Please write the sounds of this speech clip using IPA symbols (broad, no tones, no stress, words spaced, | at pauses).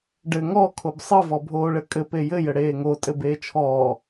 ɖɘ ŋɔ kʰobsˤɘ vɔbʱoːɭɘkʼɘ pejɘ jɘɽeːŋo tʼɘbeːt͡ʃʰɔː